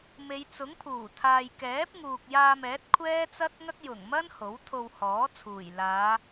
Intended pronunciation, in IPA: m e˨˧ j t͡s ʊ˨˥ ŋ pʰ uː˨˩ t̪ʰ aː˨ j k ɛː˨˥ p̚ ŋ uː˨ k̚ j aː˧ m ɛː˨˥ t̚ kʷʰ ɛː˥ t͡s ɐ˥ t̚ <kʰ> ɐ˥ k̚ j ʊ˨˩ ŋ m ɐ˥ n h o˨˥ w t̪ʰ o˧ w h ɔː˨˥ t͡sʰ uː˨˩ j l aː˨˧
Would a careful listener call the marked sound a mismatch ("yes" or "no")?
yes